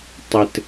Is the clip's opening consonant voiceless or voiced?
voiceless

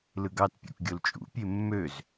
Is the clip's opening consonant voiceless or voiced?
voiced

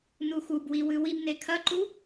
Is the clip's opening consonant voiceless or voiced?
voiced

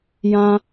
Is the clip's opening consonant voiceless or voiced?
voiced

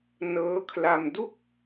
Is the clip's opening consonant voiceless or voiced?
voiced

